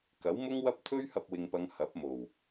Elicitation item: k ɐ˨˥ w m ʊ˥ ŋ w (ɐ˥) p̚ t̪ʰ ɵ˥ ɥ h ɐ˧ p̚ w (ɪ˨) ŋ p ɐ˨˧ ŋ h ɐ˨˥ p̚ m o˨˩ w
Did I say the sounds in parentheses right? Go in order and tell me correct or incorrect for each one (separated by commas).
correct, correct